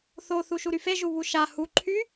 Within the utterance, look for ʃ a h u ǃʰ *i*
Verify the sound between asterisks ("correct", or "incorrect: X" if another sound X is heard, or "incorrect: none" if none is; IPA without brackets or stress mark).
incorrect: y